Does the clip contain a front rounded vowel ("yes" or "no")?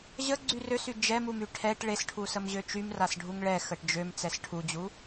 yes